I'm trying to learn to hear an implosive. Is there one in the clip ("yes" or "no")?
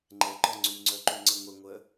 no